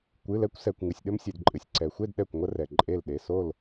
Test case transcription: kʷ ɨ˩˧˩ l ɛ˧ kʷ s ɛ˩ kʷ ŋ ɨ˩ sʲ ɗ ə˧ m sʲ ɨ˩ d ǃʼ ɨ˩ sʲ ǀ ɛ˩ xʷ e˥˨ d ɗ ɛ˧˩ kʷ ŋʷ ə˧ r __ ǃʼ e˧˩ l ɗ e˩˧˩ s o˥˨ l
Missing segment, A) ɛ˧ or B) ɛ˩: B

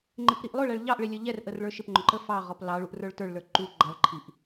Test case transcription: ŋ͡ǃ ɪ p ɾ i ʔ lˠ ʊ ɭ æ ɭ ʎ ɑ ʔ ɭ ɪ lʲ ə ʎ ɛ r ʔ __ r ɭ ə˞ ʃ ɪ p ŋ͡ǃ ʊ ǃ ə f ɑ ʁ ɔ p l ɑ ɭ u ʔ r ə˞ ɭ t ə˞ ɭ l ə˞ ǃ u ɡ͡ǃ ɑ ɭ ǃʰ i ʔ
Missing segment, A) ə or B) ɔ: A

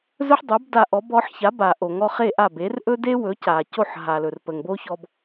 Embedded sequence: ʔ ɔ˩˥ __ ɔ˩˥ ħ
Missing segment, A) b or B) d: A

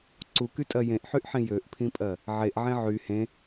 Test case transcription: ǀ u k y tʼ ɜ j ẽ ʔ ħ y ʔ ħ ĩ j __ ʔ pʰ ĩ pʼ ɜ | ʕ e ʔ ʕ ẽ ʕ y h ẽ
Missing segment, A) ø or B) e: A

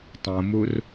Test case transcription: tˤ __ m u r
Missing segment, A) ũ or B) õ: B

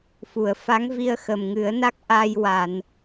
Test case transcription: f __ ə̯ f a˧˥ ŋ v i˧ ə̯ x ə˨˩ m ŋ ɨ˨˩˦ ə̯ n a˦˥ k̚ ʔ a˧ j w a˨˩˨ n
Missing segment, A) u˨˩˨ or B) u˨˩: A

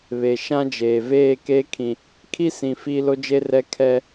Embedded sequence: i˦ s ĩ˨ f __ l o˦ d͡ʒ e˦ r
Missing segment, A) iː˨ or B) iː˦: B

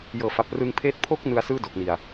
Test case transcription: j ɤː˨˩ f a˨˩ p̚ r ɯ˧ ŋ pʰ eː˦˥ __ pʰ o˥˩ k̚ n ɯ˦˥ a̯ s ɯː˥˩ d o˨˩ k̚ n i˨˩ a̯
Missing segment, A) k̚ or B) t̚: B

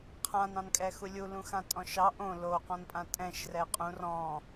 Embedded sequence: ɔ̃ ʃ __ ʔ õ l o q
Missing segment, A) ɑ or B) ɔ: A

